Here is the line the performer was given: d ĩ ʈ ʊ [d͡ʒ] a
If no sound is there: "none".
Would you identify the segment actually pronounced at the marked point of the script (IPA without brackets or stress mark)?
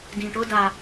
d